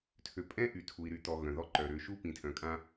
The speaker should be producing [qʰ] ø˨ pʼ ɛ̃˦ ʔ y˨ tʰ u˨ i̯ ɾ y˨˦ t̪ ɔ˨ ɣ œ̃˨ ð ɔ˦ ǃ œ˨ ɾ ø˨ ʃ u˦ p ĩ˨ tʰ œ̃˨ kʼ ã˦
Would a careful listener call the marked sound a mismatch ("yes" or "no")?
yes